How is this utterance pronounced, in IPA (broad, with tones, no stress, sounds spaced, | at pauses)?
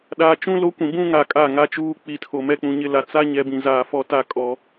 ɗ aː˨ t͡ʃ ũ˦ l o˦ kʷ ĩ˨ b ũ˦ ŋ a˨ kʼ a˦˨ ŋ a˦ t͡ʃ uː˦ k͡p i˨ tʰ o˨ m ɛ˦ k͡p ũ˨ ɲ ɪ˦ l a˨ t͡s a˦ ɲ ɛ˨ b ĩ˨ z aː˨ f ɔ˦ t a˦ kʼ ɔ˦